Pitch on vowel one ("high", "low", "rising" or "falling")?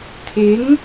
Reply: rising